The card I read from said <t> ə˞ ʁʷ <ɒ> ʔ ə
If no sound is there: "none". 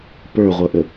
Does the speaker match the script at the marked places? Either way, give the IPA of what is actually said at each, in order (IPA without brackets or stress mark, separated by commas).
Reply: p, ʌ